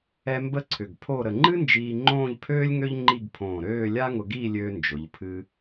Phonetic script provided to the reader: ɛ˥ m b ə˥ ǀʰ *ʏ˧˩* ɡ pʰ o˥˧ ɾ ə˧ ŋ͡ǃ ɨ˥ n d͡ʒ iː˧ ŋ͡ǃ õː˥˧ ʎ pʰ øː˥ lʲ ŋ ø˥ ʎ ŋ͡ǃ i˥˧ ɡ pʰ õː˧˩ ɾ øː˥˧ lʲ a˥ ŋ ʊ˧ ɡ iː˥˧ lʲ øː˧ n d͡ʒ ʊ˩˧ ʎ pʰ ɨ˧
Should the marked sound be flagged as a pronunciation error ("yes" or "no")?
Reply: no